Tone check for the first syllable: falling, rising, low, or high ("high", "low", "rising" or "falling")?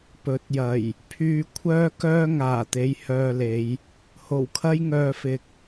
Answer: rising